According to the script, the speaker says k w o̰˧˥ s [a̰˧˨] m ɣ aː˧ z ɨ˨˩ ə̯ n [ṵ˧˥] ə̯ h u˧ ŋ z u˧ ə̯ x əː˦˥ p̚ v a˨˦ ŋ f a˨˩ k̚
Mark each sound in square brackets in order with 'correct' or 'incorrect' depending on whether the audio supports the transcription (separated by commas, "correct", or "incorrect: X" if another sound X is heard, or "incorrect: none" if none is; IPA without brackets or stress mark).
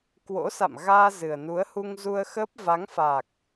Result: correct, incorrect: u˨˦